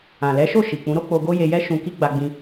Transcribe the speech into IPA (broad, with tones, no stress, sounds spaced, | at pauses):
ã˨ l ɛ˨˦ ʃ o˦˨ ʃ i˨ k͡p ũ˨˦ ɾ o˦ k͡p o˧ ɡ o˦ j e˧ j ɛ˦ ʃ ũ˧ k i˦ ɡ͡b a˧ ɡ͡b ĩ˧